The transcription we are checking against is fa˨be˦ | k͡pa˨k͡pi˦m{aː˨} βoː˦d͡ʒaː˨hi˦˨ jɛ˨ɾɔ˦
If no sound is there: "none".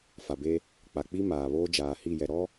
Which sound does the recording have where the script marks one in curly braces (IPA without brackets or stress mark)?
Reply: aː˨